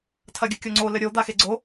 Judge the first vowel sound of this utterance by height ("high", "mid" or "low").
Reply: low